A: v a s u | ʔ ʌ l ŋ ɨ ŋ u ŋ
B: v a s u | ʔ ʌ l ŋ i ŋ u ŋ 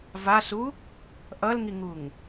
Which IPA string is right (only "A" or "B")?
B